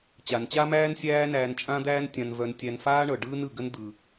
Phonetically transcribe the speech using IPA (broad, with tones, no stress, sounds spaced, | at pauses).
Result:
t͡ɕ a˩ n t͡ɕ a˥ m æː˥ n sʲ æː˥ n æː˧ n t͡ʃʼ ã˥ d̪ æː˥ n tʲ ã˧ n v œ˧ n tʲ æ˧ n f aː˥ ɳ ɤ˩ ɖ ɯː˥ n ɯ˩ ɡ ə˥ n d̪ ɯ˩